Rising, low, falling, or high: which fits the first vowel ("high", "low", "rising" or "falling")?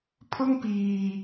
high